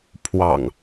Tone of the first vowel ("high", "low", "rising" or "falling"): low